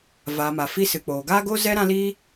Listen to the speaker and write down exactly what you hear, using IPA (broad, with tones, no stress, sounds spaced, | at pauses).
v aː˨ m a˨ f i˧ s ɨ˨ k͡p oː˨ ɡ aː˦ ɡ o˦ z ɛ˦ ɾ ã˦ l iː˦